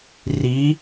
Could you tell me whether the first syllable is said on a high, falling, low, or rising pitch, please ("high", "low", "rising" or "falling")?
rising